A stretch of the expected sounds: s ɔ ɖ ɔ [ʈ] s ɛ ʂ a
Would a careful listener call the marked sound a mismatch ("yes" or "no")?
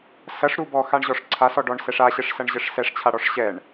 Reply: yes